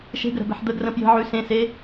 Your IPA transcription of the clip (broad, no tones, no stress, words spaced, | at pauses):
ʃe̤ɡəɾə̤bɛ̤ħ d̪əɡrə̃ pjə̤ʕʉ sẽse